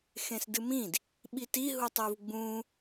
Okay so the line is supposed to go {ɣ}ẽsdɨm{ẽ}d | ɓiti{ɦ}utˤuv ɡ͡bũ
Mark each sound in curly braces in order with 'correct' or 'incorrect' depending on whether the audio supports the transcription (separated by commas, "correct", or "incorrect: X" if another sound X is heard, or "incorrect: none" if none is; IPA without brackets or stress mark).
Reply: incorrect: x, incorrect: ĩ, correct